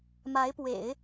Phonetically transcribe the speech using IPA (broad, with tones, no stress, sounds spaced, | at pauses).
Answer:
m a˧˥ ɪ̯ p w ḛ˨˩˦ ɪ̯